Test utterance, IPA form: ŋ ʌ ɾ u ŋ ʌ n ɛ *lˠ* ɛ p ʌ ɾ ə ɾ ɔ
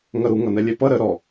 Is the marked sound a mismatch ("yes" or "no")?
yes